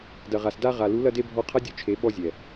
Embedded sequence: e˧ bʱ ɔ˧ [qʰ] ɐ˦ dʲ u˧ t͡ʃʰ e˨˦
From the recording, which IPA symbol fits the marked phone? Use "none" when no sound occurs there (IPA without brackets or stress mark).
qʰ